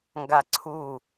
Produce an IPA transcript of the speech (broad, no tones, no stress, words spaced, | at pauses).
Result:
ŋɡaǀʰu